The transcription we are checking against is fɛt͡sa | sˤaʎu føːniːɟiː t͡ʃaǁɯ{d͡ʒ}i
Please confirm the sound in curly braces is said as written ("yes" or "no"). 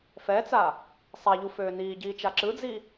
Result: no